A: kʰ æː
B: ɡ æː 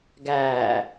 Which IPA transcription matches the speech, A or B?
B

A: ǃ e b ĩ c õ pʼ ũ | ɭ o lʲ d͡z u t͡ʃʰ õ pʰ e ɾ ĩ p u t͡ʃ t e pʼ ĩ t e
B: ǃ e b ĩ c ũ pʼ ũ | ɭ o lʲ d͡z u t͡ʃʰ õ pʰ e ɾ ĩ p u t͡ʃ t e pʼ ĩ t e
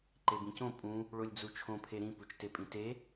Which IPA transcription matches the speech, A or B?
A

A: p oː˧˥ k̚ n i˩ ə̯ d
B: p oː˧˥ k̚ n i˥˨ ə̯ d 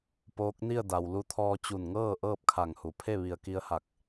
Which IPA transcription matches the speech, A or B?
B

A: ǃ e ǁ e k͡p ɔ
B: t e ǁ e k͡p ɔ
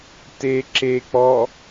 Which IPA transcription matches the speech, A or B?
B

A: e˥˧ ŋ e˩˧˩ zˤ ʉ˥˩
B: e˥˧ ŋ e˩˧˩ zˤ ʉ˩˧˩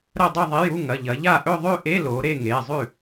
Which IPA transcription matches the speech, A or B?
A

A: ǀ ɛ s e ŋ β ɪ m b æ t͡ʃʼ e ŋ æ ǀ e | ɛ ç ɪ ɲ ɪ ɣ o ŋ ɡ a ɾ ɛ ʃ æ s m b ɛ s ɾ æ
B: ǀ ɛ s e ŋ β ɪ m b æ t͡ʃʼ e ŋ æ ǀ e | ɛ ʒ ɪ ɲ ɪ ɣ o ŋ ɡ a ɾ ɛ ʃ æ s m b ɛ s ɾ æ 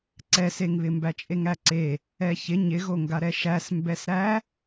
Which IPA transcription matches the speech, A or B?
A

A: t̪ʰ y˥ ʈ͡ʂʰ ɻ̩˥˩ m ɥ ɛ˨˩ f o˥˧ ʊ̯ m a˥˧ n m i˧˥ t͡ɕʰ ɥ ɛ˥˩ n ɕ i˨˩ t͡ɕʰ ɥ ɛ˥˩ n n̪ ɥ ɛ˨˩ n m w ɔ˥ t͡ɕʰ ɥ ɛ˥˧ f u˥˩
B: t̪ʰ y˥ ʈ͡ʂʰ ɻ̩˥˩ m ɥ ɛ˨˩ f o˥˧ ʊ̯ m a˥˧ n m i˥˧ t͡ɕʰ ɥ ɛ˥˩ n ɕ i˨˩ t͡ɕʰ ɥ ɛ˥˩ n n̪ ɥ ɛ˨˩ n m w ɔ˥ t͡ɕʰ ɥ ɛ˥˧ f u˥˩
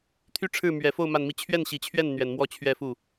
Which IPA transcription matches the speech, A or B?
B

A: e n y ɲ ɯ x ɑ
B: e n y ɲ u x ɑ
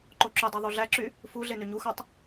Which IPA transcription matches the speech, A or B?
B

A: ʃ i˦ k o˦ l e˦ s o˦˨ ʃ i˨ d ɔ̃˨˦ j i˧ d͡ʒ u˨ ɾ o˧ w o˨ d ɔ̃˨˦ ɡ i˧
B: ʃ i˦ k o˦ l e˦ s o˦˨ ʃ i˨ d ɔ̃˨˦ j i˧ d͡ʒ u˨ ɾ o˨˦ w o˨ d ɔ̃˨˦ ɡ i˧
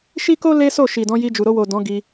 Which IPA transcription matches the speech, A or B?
A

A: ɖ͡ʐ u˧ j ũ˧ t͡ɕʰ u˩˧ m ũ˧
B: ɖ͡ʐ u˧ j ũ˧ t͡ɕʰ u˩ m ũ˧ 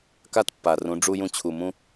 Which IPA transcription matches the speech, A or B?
B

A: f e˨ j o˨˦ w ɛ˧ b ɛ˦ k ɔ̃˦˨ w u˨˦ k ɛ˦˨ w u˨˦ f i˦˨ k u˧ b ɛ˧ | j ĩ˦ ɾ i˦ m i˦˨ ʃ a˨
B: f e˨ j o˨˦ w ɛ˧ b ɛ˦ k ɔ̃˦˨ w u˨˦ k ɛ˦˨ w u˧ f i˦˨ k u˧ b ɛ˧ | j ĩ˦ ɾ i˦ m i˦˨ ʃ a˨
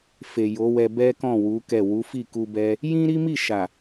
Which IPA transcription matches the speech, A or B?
A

